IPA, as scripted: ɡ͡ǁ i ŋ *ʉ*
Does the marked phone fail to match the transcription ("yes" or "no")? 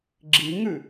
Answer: no